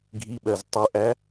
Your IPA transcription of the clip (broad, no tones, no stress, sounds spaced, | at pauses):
ɡʱ i ɓ ɜ z tˤ u ʔ æ